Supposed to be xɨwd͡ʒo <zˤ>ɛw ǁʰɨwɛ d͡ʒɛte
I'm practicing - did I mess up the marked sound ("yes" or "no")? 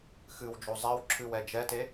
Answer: no